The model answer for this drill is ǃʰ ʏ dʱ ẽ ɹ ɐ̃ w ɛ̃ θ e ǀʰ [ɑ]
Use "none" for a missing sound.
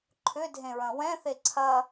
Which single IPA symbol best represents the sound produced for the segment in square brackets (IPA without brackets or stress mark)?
ɐ